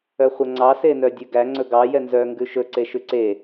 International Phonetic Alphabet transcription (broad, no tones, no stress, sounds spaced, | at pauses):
œ χʷ œ ŋ͡ǀ ɑ s e n œ dʲ ʉ ɡ æ ŋ͡ǀ ɵ ɡ ɑ j ɛ n z œ ŋ ɡ ʉ ʃ ɵ ǀ e ʃ ʉ ǀ e